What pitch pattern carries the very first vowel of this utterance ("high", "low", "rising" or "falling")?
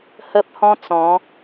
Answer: high